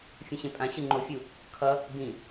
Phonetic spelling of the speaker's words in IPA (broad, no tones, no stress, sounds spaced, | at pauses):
fʲ ũ ɕ ẽ pʼ ã ɕ ɯ ŋ͡ǃ o fʲ u | kʰ ʌ | b ĩ